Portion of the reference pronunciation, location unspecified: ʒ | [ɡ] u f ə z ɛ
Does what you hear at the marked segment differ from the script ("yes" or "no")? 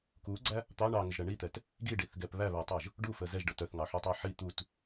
yes